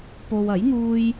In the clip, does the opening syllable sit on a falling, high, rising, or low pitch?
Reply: low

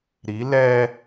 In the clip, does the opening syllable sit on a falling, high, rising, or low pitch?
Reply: rising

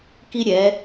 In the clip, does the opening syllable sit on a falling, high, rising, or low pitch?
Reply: high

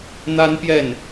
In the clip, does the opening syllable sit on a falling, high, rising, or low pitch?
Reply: high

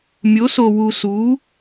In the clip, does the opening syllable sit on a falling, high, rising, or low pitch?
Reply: rising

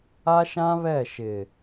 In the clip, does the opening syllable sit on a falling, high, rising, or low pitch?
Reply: high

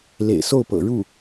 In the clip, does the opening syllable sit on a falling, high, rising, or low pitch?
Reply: low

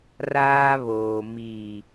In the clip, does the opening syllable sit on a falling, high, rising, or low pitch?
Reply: high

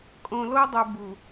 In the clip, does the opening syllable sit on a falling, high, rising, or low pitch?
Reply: low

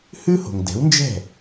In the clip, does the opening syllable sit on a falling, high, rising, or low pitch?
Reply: high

